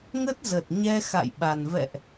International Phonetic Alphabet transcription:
ŋ ə˦˥ t̚ z ə˨˩ t̚ ɲ ɛ˧ x a̰˧˨ j ɓ a˨˩ n v ɛ̰˧˨ ʔ

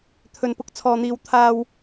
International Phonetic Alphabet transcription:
t̪ʰ ɵ˧ n p ʊ˧ k̚ t͡sʰ ɔː˧ n̪ iː˧ w t̪ʰ aː˥ w

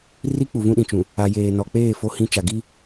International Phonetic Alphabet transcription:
r i˦ k͡p u˨ v ũ˦ ɗ ĩ˨ t͡ʃ ũ˨ | a˨ j eː˨ n ɔ˨ k͡p eː˦˨ f o˦ h ĩ˦ t͡ʃ a˨ ɡ i˦

